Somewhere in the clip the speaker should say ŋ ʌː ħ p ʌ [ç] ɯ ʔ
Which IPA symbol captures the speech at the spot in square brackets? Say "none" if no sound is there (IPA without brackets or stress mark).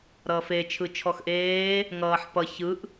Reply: ç